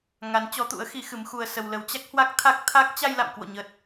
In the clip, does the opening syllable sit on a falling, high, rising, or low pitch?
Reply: rising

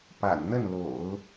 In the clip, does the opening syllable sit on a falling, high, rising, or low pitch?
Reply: low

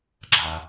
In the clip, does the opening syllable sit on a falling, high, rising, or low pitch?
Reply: low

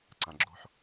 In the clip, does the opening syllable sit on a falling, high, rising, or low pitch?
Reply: low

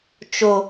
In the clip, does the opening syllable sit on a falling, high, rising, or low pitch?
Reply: low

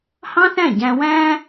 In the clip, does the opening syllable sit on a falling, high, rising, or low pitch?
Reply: high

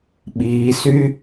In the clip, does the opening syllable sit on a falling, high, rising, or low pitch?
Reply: rising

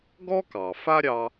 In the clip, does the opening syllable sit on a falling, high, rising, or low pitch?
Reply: high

